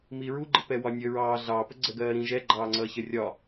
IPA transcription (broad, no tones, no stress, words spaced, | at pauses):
miɹuɡ͡ǃə pɛwɒnʲə ɹɑː ɮɑːpə ɡ͡ǀɜɡɜːɾĩ ʒɛ ɡ͡ǃɑːŋ͡ǀʌːçə rʲɒ